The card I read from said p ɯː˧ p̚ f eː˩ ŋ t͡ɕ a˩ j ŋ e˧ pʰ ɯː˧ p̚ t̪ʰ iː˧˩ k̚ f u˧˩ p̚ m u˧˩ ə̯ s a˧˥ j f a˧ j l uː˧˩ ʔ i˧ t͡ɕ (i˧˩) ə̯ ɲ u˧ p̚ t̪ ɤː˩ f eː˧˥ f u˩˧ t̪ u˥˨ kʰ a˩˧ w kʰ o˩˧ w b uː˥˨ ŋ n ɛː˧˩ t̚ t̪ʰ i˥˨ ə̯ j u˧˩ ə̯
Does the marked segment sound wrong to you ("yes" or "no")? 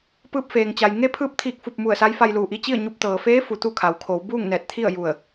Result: yes